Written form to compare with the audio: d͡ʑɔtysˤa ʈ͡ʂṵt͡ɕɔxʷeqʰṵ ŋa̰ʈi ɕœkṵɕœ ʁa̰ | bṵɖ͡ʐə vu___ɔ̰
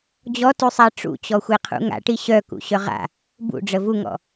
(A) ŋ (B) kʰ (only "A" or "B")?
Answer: A